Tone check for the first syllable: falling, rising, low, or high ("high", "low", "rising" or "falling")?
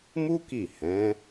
high